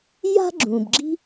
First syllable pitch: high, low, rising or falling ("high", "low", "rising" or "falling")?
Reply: high